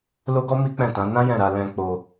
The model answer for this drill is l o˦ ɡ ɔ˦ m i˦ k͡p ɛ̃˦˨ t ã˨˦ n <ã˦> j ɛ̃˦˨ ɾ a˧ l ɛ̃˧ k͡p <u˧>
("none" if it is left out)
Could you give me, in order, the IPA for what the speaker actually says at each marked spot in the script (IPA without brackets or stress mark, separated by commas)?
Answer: ã˦, o˧